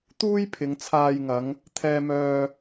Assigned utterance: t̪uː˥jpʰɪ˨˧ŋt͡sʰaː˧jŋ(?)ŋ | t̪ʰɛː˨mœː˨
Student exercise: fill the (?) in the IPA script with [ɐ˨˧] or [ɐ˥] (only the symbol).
ɐ˨˧